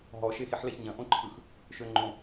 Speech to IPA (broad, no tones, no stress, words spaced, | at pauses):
ɦɔ ʃexiħlɛçɲɐ̃ ʔõǃʰɯx | ʃøŋ͡ǃõ